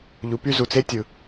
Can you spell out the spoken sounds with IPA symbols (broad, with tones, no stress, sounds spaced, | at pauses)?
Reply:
ʎ u˩˧ p y˧ z u˩ t͡s e˧˥ tʲ ɯ˩